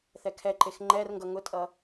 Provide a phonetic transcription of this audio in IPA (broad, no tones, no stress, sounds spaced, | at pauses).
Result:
θ ɛ kʰ ɛ ǃ e x ŋ͡ǃ ɛ r ŋ ɡ ʌ ŋ ʊ tʼ ʌ